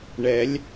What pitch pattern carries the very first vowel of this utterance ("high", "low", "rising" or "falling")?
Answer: rising